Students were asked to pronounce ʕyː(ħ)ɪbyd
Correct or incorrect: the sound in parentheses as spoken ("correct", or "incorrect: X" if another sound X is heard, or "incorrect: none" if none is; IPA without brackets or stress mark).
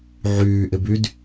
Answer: incorrect: ʔ